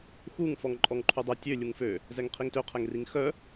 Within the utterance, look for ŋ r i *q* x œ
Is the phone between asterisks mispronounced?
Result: yes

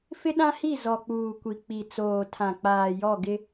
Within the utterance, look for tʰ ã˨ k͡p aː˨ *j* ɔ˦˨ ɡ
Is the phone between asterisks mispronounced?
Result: no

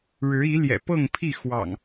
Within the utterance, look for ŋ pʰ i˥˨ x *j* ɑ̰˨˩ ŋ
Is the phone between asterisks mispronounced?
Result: yes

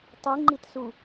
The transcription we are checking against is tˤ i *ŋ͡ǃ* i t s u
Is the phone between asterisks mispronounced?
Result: no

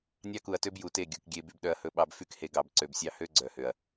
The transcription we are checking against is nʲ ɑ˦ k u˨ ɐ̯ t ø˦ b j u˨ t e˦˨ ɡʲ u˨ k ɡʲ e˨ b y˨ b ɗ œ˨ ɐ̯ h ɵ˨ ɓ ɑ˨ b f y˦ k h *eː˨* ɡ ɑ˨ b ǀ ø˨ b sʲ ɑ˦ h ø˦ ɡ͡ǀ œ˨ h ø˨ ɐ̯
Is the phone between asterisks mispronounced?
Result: yes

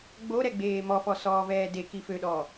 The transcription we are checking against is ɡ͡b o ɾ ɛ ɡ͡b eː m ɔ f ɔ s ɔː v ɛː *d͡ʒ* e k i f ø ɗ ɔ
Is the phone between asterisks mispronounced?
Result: yes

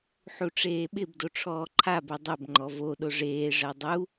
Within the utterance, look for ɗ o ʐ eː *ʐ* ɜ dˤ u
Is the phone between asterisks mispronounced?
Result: no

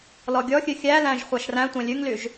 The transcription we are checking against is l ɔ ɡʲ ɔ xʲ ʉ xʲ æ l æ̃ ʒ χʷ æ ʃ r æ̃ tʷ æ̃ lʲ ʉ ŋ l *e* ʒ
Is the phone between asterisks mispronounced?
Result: yes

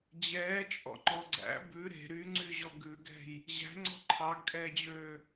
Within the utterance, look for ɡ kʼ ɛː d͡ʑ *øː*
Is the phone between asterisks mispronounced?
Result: no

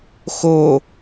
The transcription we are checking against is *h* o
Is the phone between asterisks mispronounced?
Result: yes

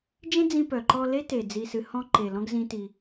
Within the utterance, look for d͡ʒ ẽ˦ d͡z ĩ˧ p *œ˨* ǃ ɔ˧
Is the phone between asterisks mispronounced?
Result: no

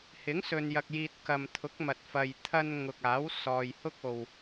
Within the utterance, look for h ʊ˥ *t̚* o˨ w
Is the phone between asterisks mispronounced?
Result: yes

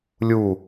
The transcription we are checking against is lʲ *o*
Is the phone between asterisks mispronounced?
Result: yes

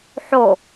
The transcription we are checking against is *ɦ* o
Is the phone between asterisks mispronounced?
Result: yes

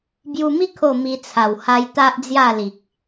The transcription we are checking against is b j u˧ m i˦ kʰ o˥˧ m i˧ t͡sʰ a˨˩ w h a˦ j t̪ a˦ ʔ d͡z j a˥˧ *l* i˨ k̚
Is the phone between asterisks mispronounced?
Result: no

